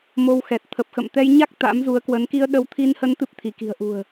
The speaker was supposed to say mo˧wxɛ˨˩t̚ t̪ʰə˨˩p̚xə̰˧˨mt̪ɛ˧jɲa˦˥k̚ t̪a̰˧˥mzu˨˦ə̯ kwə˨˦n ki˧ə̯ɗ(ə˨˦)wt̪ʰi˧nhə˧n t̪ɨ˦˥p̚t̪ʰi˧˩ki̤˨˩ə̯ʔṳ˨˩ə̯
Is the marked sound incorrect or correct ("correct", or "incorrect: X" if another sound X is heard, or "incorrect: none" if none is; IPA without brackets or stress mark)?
correct